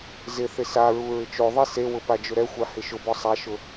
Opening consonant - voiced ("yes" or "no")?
yes